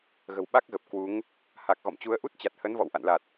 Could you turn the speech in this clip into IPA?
ɣ ə̤˨˩ w ɓ a˦˥ k̚ ɣ ə˨˩ p̚ k w u˨˦ ŋ | h a˨˩ k̚ ɣ ɔ̰˧˨ m t͡ɕ u˨˦ ə̯ ʔ u˦˥ t̚ t͡ɕ a˨˩ t̚ h ə˨˦ n v ɔ̰˧˨ w ʔ a̰˧˨ n l a˨˩ t̚

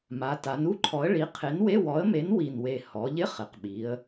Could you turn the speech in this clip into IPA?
m a˩˧ t a˩˧ n u˧˥˧ ǃʰ ɔ˨˥ ə̯ ɭ i˨˥ qʰ e˨˥ n w e˧˥˧ w ɔ˨˥ ə̯ m e˨˥ n w i˨˩ n w e˨˩ h ɔ˩˧ ʎ ɪ˧˥˧ χ ɪ˩˧ q ɓ i˩˧ ə̯

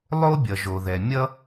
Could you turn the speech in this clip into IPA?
lˠ o˥ bʲ ʌ˩ ʒ o˩ ð ɛ˩ mʲ ʌ˥

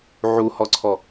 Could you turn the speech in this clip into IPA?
ʕ u h ɔ ǀʰ ɔ

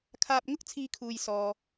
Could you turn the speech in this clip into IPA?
kʰ aː˧ p̚ ŋ ʊ˥ k̚ t͡sʰ iː˥ kʰ uː˧ j s ɔː˧

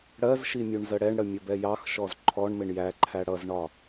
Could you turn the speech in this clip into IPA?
ɽ ɜ z ʃ i mʲ u ɳ z ə ɽ ɛ ɳ ɽ ə mʲ ə b ɛ j ɑ x ʃ ɔ z ǃʰ ɔ ɳ m ɪ ɳ j æ ǃʰ æ ɽ ʌ z ɳ ɒ

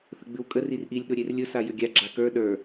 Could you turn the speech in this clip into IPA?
θ ə ɡ͡b ʉ w kʼ ə r i r ʔ i lʲ ɗ ʊ ɾʲ e r lʲ ʊ s a j ʏ ɡʲ a ɡ͡ǁ a k ə˞ ɗ ə˞

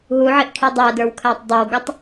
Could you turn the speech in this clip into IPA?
ɦ u ʕ i ʔ kʰ i dˤ æ d ə˞ w kʰ æ tˤ dˤ ə˞ w ɡ ʊ tˤ

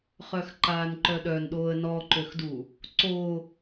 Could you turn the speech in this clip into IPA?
χ œ x ǃ aː n ǃ œ ɗ œ n ɗ oː ə̯ n ɔ ǃ ø x d u | ǀ o

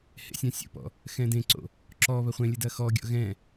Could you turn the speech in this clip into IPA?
h ḛ sʲ ã sʲ o̰ p ɔ̰ | x ɛ̃ d ẽ ǀ o̰ | ǁ ɔ β ɐ χʷ ẽ lʲ ɘ d ɐ x ɔ ɡʲ ɔ̰ ɣ ɛ̃

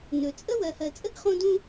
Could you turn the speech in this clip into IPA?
n ɵ˩ t͡sʼ ə˥ w ɜ˨ h ɜ˨ t͡sʼ ə˥ ɡ χ õ˥ d ũ˥

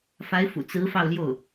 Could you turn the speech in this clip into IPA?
f a˧˥ ɪ̯ f ṵ˨˩ t͡s ɹ̩˧˥ f ɑ˥˧ ʊ̯ l j o˥˩ ʊ̯

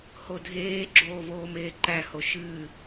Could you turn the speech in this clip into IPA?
h o dʱ eː ɡ͡ǁ oː v oː m eː ǃ æ h o ʃ ɨː

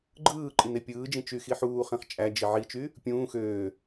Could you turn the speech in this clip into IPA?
ɡ͡ǃ ɯː ǃʼ i n e pʲ ɯː d͡ʒ ĩ t͡ʃ y x i ħ uː χ ĩ χ t͡ʃʼ æ d͡ʒ i ʕ i t͡ʃ y | pʲ ũː x øː

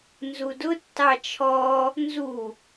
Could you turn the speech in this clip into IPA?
n z u d ʊ tː ɑ t͡ʃʰ ɔ | n z u

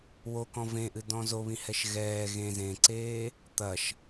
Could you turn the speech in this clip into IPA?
w o k ɔ̃ v ẽ ʔ ɨ d ɔ̃ z o β ĩ h ɛ ʃ ɣ ɛː ɣ ẽ z ẽ ǀ eː | t̪ ɐ ʃ

